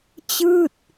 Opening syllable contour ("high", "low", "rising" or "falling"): falling